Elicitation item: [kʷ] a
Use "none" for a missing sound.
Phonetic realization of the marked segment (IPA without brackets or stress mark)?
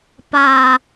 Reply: p